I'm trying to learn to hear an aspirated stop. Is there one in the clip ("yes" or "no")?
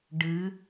no